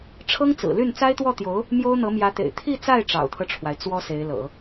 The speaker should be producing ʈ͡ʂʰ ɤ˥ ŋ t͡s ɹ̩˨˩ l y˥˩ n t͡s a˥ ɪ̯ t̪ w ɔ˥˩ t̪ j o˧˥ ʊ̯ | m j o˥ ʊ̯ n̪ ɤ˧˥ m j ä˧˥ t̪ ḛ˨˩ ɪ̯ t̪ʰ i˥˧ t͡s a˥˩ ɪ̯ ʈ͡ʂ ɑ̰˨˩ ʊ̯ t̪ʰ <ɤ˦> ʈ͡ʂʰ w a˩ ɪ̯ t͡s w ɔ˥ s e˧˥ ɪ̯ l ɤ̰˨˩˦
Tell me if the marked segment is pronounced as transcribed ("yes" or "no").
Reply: yes